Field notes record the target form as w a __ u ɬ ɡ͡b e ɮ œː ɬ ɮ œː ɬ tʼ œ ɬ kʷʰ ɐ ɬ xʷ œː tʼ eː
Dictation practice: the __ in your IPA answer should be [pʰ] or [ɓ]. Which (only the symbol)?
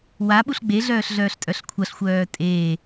ɓ